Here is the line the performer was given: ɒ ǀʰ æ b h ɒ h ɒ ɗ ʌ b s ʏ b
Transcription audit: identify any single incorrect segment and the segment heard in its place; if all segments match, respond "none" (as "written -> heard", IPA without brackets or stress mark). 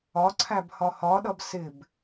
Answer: ʏ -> ɪ